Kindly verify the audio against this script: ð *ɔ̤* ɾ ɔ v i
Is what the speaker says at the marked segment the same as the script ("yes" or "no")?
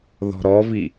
yes